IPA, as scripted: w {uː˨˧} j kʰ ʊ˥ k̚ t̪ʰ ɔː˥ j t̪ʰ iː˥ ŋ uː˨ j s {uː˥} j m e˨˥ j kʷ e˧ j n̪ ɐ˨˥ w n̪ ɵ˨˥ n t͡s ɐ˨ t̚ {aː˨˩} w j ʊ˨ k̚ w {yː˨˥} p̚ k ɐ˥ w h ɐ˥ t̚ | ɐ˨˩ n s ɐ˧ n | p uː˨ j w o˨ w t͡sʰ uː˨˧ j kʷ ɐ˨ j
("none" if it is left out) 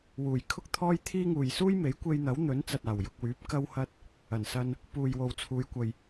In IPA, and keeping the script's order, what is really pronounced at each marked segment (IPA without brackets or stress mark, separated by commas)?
uː˨˩, uː˥, aː˨˩, yː˨˥